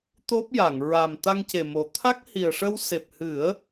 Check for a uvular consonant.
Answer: absent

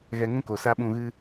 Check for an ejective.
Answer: absent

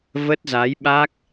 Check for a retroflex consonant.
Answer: absent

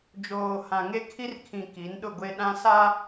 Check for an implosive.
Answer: present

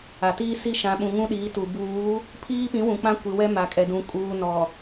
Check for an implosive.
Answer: present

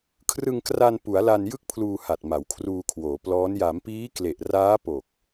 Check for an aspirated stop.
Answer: present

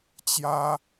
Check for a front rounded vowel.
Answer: absent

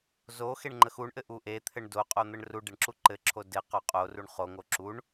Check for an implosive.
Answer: absent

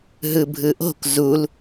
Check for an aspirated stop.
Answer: absent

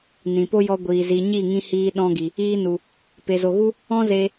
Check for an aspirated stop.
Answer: absent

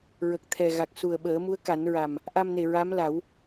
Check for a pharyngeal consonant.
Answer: absent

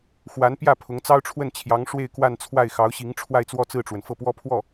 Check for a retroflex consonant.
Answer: present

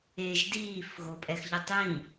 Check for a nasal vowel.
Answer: present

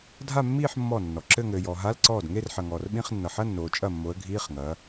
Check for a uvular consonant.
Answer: present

